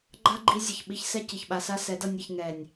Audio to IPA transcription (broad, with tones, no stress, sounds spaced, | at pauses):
ɡ͡ǃ a˦ ɡ͡ǃ i˧ zʲ ʌ˨ ç ɓ i˧ ç s ɛ˦ c i˨ ç ɓ a˧ s a˦ s ɛ˨˦ d ʌ˧ nʲ i˨ ç ŋ ɛ˨ nʲ